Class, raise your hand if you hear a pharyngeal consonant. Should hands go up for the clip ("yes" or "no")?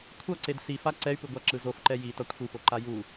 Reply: no